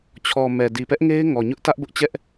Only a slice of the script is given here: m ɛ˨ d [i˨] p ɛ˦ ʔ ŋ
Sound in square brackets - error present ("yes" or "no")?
no